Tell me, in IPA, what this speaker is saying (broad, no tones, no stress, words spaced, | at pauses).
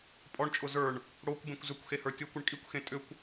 pʼɔɳt͡ʃʼʊ zə˞ɳ | ɽokʷbẽkʷ zʏkʷxehə˞ tʲokʷʏɳ kʼikʷxẽ tʼʏkʷ